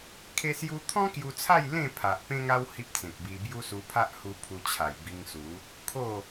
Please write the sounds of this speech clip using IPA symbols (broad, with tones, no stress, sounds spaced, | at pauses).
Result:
kʰ e˧ s j u˧ t̪ʰ ɔ̃˦ k j u˧ t͡sʰ a˥˧ j l ẽ˥˧ pʰ a˨ ʔ p ẽ˦ ŋ a˦ w h i˦ p̚ t͡s ẽ˨ k̚ b i˧ b j u˦ s u˧ pʰ a˦ ʔ h u˧ pʰ u˧ t͡ɕʰ a˨˩ j b i˧ ŋ s u˨˦ | kʰ o˥˧